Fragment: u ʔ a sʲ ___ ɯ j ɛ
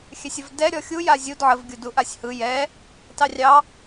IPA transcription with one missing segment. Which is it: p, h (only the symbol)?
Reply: h